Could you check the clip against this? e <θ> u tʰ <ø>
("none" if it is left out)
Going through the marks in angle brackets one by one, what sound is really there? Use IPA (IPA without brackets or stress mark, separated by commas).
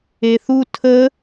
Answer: θ, ə